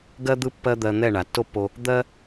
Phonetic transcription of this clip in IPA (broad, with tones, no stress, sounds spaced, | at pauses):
ɡ ɜ˥ d̪ ɯ˥ pː ɜ˥ d̪ ɜ˧ n̪ ɛ˥˧ ɳ a˩˧ tː o˥˧ pː o˧ | d̪ ɜ˥